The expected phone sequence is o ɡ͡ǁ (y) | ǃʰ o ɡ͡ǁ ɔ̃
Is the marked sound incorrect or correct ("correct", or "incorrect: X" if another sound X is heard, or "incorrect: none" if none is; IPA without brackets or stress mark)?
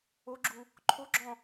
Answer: incorrect: u